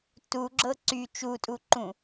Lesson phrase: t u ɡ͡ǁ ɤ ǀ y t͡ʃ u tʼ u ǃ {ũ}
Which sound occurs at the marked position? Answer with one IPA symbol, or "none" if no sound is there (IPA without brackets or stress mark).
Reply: ũ